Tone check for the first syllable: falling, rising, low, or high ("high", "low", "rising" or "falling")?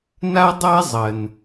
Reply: high